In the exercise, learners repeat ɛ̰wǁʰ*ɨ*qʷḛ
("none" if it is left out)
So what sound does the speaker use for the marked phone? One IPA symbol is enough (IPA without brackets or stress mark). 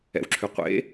y